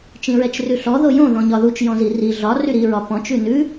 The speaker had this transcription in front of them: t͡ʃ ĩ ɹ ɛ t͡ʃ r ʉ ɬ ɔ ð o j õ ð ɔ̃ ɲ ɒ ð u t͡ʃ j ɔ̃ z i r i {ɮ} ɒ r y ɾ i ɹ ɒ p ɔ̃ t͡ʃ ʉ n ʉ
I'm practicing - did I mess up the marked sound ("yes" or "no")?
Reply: no